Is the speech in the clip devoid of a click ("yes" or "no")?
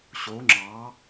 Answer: no